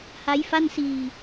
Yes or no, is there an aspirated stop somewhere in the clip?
no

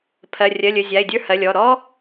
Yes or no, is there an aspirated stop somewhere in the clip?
yes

